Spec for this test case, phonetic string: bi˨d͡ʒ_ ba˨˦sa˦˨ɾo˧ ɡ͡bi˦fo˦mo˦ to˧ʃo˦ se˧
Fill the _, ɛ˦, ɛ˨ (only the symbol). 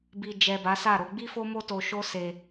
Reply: ɛ˨